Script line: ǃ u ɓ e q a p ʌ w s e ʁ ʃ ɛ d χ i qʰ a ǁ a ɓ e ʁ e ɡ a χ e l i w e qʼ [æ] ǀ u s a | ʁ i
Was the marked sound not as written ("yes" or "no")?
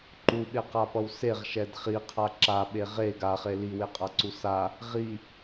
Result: yes